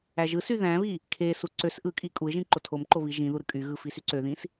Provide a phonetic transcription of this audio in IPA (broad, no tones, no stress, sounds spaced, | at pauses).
æ ʒ ɯ s y ð æ̃ β i | kʰ e s u ǀ ø s ʔ ɯ kʼ i kʼ u ɪ̯ ʒ ĩ ǃ o tʰ o m ǃ o β i ʒ ĩ ð u ɾ ɯ kʼ y ɣ ɯ f i s y ǀ ø ð ĩ s